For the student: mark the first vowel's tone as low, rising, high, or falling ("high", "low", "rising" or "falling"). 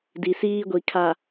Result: low